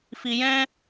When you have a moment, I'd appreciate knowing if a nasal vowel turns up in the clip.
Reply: yes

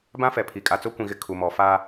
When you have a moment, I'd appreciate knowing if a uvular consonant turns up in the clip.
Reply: no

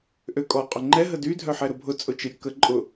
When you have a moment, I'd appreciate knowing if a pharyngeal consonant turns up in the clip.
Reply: yes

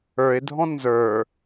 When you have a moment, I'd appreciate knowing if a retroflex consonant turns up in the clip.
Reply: no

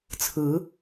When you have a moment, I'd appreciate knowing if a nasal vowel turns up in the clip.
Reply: no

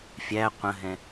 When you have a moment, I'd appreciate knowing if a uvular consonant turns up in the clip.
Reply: yes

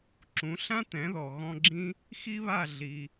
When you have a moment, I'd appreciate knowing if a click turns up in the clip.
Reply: yes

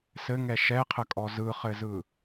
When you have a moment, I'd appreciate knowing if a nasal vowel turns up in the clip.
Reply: no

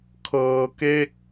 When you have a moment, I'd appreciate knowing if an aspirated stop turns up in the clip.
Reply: yes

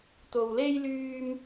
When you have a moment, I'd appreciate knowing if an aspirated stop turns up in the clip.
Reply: no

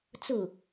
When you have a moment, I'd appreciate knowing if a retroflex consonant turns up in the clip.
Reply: no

